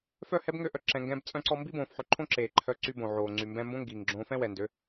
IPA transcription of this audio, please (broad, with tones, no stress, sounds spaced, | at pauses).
f œ˦˨ h ɛ˦ b ŋ ø˧ ʔ œ˨ ǁ ɛ̃˨ ŋ ɡ ɛ̃ː˧ b t͡sʼ œ̃˦ ǀ ɔ˦ m b i˦ b õː˨ f ħ ø˧ ǃʰ õ˦ ǁ eː˨ ǃʰ œ˧ ǀ y˧ b õ˨ ʕ oː˨ ŋ͡ǀ y˨ m b ɛ̃˧ m b õ˦ ŋ ɡ iː˨ ŋ ɡ͡ǁ õː˧ f ɛ̃˦ w ɛ˨ n d ø˨˦